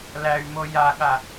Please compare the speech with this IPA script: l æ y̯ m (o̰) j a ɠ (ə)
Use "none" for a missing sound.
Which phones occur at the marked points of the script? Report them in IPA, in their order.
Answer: o, a

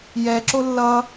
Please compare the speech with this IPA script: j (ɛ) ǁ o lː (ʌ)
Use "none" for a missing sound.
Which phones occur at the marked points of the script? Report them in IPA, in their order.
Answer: ɛ, ʌ

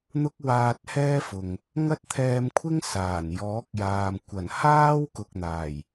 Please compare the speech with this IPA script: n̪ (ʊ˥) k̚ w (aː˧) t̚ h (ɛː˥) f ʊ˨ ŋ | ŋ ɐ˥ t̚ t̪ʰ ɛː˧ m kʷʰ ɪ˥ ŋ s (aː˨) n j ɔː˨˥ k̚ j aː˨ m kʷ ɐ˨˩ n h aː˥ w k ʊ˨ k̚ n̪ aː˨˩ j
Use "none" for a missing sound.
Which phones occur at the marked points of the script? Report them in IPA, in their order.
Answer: ʊ˥, aː˧, ɛː˥, aː˨˩

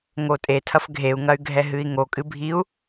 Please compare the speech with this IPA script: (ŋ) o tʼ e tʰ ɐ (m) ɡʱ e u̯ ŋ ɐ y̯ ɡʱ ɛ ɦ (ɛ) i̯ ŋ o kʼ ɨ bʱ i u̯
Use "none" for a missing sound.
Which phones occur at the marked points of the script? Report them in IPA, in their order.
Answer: ŋ, f, ɨ

